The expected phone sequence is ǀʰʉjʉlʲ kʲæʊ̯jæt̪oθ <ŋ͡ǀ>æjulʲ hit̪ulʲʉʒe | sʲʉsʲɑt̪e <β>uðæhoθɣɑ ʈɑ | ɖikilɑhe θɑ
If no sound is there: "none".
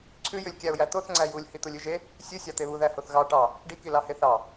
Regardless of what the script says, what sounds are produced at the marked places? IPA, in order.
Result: ŋ͡ǀ, β

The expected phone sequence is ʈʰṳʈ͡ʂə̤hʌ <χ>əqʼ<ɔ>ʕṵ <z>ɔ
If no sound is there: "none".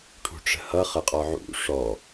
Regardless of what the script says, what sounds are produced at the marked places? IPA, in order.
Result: χ, ɔ, ʂ

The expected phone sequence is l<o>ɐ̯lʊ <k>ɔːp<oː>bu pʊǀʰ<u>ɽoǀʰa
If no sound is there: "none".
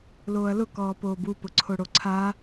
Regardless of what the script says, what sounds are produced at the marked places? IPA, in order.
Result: oː, k, oː, o

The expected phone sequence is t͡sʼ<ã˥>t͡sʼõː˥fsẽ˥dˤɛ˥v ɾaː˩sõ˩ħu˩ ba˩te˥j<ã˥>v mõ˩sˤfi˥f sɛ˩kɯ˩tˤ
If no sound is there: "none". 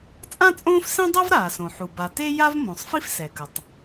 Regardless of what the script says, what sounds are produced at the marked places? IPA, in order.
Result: ã˥, a˥

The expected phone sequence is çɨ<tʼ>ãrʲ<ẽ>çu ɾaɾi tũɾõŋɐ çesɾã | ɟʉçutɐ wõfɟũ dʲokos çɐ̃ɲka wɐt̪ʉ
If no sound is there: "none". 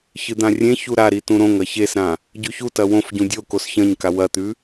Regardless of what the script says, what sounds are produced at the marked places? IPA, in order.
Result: d̪, ẽ

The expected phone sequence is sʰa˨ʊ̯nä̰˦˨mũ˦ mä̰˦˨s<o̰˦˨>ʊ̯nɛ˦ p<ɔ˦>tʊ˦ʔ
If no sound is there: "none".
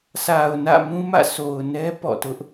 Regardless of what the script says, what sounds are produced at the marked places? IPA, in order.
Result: o˨, ɔ̰˦˨

